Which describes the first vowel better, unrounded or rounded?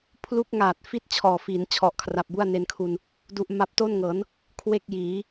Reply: rounded